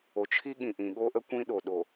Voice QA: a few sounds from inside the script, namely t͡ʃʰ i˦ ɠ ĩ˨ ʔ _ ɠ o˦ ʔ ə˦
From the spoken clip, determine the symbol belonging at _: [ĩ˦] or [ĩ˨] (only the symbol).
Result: ĩ˨